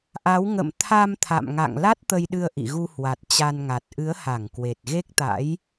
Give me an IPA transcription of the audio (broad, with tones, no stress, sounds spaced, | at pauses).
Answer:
ʔ a˨˦ w ŋ ə̰˧˨ m t̪ʰ a˧ m t̪ʰ a̰˧˨ m ŋ a̰˧˨ ŋ l a˦˥ t̚ t̪ ə˧ j ɗ ɨ˧ ə̯ ʔ ḭ˧˨ ɣ u˧ h w a˨˩ t̚ t͡ɕ a˧ n ŋ a˨˩ t̚ ʔ ɨ˨˦ ə̯ h a˧˩ ŋ k w e˨˩ t̚ ɣ e˦˥ k̚ t̪ a̰˧˥ j